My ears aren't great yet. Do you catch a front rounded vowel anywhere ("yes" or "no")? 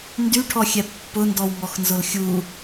yes